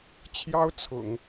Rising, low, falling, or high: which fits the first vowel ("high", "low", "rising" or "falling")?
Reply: high